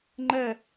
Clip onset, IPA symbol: ŋ͡ǃ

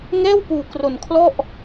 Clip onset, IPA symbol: ŋ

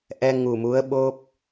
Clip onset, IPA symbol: ʔ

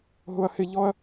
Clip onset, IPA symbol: ɦ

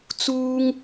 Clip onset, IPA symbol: t͡s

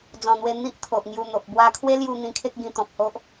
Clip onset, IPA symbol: d͡z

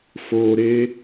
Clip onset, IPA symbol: f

